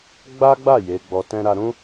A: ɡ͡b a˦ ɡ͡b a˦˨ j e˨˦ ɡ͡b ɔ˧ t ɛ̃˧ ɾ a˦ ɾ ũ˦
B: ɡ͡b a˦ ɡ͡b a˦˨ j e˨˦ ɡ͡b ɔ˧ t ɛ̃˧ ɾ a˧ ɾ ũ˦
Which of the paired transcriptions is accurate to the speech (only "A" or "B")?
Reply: B